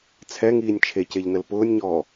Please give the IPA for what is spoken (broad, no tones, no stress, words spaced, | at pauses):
t͡sʰɛŋiːnʲ t͡ʃʰeceʎnəl pʊːnʲɲɔː